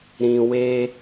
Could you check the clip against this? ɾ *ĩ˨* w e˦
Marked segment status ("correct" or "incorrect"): correct